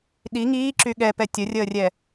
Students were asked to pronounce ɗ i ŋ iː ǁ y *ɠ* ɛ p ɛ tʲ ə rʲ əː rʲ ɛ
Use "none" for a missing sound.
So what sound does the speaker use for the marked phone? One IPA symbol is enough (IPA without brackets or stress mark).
ɠ